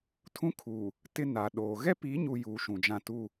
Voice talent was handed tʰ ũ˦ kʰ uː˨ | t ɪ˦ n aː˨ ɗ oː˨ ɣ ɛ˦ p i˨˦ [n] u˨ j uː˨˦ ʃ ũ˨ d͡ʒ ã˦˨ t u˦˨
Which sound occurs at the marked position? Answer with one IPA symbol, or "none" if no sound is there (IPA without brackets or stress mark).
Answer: ɲ